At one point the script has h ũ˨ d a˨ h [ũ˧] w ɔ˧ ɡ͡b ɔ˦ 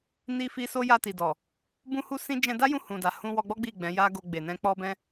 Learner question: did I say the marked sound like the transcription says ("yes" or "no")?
yes